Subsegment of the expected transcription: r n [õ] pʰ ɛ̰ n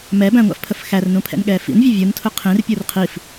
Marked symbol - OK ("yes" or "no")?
no